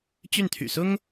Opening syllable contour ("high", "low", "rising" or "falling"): falling